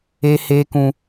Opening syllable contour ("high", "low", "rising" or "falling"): high